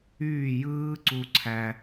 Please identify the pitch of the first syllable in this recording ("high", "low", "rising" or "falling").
falling